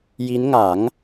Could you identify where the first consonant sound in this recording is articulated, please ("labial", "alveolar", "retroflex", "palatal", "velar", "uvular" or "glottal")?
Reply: palatal